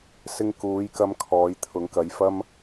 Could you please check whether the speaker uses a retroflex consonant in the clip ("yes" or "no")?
no